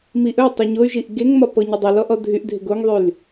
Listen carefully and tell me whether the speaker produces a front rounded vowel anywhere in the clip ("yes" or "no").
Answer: yes